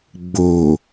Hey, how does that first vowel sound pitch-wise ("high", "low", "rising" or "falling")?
low